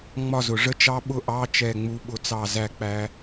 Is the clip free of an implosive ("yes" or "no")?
no